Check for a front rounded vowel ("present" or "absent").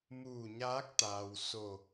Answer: absent